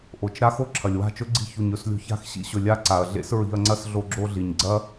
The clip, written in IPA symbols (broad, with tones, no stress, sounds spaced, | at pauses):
ʔ o˨ t͡ʃ ɾ a˦ x o˦ ǁʰ ɐ˨ lʲ w a̤˦˨ t͡ʃ ɵ˦ ɡ͡ǀ i̤˧ ç u˨ ɲ ɵ˨ s lʲ o̤˧ ç a̤˦˨ x ɕ ḭ˧ ɕ ɵ˨ lʲ a˦ ǀ a˨ ɐ̯ ɮ ḛ˦ s ɹ i̤˧ ɐ̯ ŋ͡ǀ ɐ˦ s ɮ o˧ ɡ͡ǁ o˧ ɮ i˨ ɲ ɡ͡ǀ ɐ˦